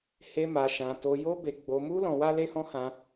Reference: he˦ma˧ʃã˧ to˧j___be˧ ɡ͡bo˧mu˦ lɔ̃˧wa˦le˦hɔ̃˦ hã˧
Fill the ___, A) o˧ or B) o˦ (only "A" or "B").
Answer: B